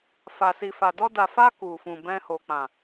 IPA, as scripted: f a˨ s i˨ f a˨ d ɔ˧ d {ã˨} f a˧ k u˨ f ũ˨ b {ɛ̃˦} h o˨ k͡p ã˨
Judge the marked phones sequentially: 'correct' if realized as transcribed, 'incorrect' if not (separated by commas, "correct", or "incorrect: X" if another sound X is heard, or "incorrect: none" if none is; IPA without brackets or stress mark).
incorrect: a˨, incorrect: ɛ̃˧